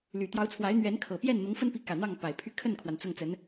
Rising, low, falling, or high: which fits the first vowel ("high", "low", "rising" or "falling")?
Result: low